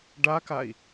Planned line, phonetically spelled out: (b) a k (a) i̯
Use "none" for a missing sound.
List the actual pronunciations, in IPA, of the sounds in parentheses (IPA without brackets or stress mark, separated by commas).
ɖ, a